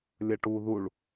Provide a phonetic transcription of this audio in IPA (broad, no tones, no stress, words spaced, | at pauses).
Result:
lʲɐʈu ðuɭ